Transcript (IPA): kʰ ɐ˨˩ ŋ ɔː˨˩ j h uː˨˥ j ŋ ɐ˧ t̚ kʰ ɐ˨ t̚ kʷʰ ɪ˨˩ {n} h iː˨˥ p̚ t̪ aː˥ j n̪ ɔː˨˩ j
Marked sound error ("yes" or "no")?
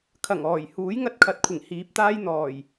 yes